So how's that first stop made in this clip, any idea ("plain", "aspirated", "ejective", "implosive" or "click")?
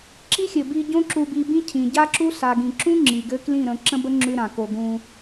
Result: click